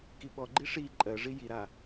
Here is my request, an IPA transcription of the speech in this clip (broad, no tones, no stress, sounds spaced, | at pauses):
k i ɓ ɔ ɡ͡ǃ i ʂ i ǃʼ ɜ ʐ i j i ɾ a